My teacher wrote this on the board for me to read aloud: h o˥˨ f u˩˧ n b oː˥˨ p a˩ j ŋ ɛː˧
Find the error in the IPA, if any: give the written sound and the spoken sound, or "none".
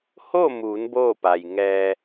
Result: f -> m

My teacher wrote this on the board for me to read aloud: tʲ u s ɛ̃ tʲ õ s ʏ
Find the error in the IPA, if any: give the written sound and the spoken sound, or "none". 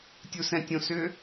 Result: none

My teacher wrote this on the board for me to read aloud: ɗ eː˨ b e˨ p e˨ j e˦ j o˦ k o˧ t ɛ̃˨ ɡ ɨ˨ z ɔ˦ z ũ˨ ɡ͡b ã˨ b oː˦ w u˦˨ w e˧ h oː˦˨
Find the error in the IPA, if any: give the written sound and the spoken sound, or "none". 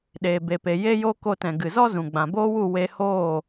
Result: none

